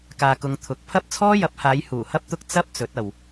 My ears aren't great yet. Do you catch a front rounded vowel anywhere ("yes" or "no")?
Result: no